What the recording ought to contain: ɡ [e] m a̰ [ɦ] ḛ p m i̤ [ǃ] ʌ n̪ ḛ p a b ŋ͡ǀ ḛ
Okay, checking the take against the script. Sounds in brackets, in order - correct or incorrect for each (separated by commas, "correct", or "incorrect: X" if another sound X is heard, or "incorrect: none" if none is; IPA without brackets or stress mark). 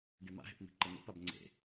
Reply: correct, correct, correct